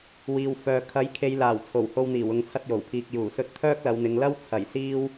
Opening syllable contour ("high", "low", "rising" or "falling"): low